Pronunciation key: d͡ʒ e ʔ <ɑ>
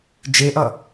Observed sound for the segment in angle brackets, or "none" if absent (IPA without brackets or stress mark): ʌ